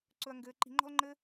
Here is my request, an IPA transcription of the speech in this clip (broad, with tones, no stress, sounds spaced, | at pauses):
ǀ ɵ˧ ɐ̯ ŋ ɡ ɘː˧ ǃ i̤˧ ŋ͡ǃ ɔ̤˦ l ŋ͡ǃ ɘː˦